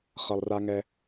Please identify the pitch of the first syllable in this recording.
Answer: low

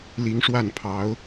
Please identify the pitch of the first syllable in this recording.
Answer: rising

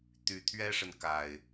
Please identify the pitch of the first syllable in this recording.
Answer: low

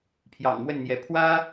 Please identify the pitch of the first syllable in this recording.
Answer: low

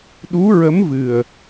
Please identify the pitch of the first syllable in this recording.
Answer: rising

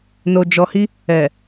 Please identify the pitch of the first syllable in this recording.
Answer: low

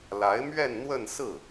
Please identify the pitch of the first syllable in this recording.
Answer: rising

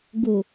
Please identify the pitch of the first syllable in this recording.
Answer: low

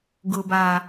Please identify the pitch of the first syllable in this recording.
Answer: low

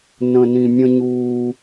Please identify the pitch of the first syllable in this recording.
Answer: low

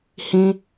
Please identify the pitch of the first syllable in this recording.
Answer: high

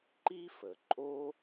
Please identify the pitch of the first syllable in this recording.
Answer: high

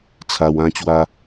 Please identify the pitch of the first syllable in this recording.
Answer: high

